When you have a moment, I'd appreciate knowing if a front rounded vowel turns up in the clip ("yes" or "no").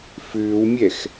yes